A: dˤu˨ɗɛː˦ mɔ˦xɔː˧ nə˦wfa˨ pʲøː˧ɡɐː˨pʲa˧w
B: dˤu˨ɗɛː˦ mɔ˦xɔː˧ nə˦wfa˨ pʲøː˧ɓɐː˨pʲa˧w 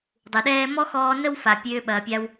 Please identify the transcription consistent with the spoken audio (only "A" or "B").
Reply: B